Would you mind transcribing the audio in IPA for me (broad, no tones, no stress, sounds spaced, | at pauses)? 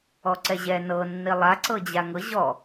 ɔ ǀ ɛ ʑ ɛ n ɤ nː i lˠ a ǀ ɤ d͡ʑ a ŋ ɤ ʑ ɔ